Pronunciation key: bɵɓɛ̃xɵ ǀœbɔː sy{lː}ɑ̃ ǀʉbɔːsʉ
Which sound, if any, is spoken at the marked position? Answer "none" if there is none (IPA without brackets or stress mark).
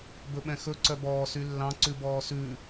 lː